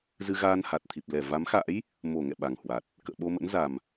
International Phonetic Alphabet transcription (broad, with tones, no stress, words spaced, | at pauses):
zɨ˧ɣaː˧nha˨˩t̚t̪ʰi˨˩p̚ lɛ˧˩va˨˦mxa̰˧˥j | mo˧˩ ŋɛ̰˧˨ ɓa˨˩ŋhwa˨˩t̚ | kə̰ː˧˨ɓo˧mə̰˧˥n za˨˩m